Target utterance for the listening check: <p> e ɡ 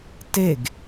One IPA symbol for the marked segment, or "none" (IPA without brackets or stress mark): t